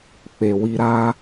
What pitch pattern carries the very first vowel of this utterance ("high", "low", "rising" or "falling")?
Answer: low